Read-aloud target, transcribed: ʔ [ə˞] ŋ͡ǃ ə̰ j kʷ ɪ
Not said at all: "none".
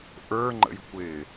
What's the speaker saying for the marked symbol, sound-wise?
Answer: ə˞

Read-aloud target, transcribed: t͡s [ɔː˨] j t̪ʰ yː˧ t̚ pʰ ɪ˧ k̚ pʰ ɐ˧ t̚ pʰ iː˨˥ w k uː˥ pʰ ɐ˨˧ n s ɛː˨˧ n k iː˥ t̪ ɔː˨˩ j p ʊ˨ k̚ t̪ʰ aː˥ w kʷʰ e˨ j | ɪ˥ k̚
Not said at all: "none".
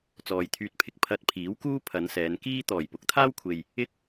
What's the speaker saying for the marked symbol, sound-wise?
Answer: ɔː˨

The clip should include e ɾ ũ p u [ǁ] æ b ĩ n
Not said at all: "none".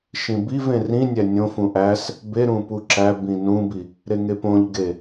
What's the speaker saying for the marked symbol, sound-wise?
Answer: ǁ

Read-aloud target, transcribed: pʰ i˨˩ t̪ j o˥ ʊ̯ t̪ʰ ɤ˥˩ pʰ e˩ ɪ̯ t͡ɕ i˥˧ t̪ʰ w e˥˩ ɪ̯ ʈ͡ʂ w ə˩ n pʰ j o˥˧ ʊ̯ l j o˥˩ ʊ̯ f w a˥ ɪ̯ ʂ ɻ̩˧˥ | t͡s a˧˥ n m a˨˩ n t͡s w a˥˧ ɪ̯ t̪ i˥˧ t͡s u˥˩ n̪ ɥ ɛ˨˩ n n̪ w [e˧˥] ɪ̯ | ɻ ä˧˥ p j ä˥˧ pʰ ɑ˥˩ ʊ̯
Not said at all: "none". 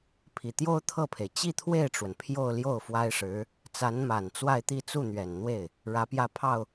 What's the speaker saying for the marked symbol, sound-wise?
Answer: e˥˩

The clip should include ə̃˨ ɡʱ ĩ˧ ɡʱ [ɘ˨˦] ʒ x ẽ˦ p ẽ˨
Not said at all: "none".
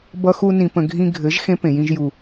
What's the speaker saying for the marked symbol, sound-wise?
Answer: ɘ˨˦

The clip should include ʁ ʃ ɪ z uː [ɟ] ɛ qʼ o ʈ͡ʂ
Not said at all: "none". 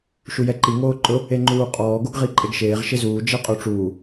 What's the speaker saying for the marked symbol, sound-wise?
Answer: d͡ʒ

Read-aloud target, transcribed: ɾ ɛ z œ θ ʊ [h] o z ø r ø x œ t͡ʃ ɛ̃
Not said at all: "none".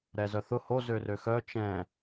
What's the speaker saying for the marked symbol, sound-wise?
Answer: h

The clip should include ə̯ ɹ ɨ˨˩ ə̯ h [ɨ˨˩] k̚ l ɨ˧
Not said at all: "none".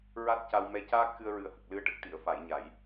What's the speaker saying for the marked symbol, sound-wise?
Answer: ə˨˩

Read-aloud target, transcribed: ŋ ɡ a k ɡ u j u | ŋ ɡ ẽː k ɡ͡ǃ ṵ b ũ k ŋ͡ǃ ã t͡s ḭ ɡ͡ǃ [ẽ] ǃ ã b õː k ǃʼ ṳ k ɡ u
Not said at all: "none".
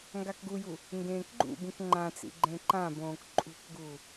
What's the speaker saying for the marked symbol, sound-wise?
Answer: ẽ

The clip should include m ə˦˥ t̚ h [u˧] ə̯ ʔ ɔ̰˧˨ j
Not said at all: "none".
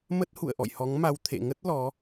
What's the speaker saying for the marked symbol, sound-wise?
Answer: ṵ˧˨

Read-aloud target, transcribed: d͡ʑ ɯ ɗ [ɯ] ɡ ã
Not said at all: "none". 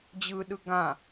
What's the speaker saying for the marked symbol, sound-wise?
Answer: ɯ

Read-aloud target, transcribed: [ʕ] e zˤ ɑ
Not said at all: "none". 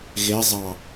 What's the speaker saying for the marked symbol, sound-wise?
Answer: ɣ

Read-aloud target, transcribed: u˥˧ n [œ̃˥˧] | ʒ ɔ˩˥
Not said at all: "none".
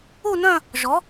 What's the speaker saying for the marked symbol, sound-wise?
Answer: œ̃˥˧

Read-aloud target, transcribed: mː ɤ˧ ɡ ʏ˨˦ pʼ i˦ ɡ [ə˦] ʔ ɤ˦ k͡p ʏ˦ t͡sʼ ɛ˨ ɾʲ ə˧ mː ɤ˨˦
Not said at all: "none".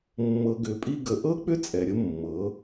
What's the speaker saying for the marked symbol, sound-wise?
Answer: ə˧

